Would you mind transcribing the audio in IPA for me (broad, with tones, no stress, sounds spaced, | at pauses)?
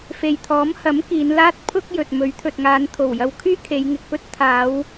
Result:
f e˨ j t̪ʰ ɔː˨˥ m h ɐ˨˥ m k iː˨˧ n l aː˥ t̚ pʰ ʊ˥ k̚ j ɵ˨ t̚ m ɵ˨˥ ɥ t̪ʰ ɵ˨ t̚ ŋ aː˨˧ n t̪ʰ o˨˩ w j ɐ˧ w kʰ yː˥ kʰ e˨˧ j ŋ ɪ˨ k̚ p ɵ˥ t̚ t̪ʰ aː˨˧ w